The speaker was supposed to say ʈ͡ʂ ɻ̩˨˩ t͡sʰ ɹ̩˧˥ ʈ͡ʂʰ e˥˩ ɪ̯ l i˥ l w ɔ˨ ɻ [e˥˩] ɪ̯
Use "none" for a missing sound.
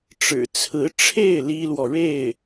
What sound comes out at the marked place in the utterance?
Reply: e˥˩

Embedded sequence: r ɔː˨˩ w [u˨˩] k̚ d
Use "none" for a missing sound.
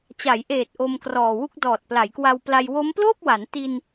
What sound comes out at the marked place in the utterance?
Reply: u˥˩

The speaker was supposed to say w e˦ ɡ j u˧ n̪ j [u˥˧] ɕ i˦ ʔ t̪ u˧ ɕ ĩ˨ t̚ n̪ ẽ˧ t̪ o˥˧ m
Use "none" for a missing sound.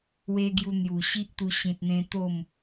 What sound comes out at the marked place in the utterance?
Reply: u˨˩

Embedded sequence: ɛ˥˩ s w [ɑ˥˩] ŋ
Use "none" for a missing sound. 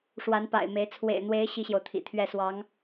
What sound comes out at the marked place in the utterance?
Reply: ɑ˧˥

